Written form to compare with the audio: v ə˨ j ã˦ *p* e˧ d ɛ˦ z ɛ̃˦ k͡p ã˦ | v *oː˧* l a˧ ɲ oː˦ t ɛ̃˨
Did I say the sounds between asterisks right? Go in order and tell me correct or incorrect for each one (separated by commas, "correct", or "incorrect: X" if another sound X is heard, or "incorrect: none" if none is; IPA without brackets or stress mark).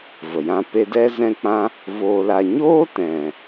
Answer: correct, correct